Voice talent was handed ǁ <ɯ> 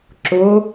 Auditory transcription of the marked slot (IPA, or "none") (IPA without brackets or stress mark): ʊ